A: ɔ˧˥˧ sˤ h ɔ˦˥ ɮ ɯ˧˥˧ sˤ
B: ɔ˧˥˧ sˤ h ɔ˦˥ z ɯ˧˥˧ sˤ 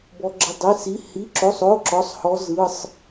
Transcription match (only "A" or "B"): B